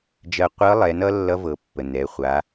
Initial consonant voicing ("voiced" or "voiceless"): voiced